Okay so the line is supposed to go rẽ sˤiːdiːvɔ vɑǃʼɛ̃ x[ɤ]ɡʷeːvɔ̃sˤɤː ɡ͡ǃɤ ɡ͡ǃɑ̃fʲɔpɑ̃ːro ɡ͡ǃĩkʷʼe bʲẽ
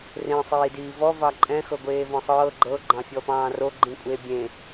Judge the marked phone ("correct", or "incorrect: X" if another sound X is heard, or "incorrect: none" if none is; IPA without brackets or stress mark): correct